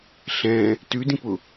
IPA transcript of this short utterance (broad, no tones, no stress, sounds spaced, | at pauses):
ɬ ɛ̃ | t ʉ d ĩ p ʊ